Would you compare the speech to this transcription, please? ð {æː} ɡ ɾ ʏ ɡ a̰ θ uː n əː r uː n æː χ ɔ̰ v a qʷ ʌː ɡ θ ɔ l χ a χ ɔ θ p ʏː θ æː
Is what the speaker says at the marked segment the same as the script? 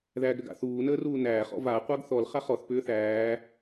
yes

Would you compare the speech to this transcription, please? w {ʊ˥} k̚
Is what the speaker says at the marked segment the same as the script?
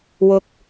no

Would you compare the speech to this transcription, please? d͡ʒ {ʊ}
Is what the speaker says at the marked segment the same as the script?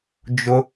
yes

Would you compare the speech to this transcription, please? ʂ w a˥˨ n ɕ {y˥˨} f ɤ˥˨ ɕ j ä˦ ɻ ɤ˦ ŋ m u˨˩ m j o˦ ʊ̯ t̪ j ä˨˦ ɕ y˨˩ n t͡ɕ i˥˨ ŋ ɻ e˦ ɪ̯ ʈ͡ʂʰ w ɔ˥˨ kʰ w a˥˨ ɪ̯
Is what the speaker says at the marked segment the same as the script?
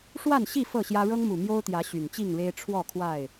no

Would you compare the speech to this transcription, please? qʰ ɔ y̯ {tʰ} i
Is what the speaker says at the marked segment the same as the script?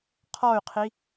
no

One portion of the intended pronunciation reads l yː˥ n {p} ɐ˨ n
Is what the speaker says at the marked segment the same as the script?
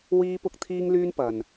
yes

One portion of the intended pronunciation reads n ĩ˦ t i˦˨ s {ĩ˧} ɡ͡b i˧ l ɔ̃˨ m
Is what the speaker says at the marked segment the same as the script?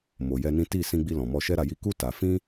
yes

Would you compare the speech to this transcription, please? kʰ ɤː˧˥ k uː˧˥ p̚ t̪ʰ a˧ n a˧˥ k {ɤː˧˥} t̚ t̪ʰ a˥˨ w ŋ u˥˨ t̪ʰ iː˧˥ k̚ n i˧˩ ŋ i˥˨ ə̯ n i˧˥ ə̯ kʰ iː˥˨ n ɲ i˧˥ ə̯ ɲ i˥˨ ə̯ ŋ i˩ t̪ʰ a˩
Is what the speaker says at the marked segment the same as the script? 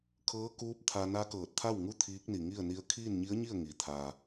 no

